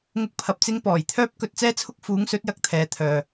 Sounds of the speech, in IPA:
ŋ ʊ˥ k̚ pʰ ɐ˧ p̚ t͡s ɪ˥ ŋ p ɔː˨˩ j t̪ʰ œː˥ p̚ k ɵ˧ t̚ t͡s ɛː˥ t͡sʰ ʊ˥ k̚ f uː˨˥ ŋ s ɵ˨˥ t̚ j ɐ˨ k̚ t̪ʰ ɛː˨ t̪ʰ œː˨

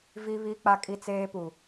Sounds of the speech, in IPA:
v i˦ β i˦ k͡p a˦ kʼ i˦ t͡s eː˦ p u˨

